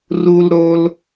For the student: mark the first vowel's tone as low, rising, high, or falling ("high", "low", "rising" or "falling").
high